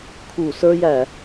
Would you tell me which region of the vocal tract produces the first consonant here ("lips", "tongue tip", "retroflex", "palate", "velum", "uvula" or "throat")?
velum